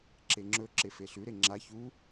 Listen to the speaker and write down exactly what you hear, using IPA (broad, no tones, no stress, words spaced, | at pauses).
ǁeŋ͡ǁɵ ǁefeɬʉ ɾeŋ͡ǁa çu